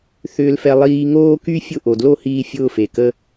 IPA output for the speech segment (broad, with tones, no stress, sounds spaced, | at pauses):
θ ʏː˦ l f ɛ˦ lˠ iː˧ ŋ oː˦ k y˦ fʲ ʊ˦˨ ʔ o˨ d l o˦ h iː˧ fʲ ʊː˦ f e˨ k ə˦